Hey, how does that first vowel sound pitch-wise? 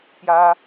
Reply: high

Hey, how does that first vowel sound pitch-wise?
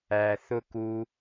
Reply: low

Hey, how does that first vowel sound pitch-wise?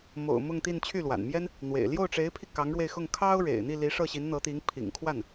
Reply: low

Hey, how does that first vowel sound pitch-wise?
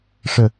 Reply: low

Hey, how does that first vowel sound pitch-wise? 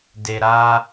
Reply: low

